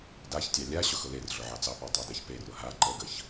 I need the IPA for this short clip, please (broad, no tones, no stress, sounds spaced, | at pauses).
d a ç tʲ ɑ lʲ a ɕ ʊ x ʊ l e r ɮ ʊ ʕ ɑ t͡s ɑ p ɑ tˤ a d e ç p e r ʊ ɦ a ǃ ə ɡ ə ç